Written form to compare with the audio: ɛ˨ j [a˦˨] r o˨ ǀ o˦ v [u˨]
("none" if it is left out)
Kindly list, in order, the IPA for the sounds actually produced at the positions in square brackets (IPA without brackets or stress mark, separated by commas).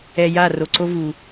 a˦˨, u˨